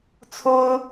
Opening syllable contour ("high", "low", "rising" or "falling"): high